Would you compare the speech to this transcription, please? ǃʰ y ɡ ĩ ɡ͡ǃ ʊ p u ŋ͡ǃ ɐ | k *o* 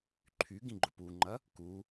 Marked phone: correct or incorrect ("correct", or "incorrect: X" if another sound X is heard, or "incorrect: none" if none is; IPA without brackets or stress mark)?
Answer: incorrect: u